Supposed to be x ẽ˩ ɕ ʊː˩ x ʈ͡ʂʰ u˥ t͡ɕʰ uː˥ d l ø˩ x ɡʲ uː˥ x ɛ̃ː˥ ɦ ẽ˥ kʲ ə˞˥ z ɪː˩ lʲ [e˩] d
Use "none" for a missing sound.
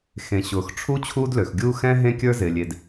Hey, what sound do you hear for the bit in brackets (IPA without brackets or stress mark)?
e˩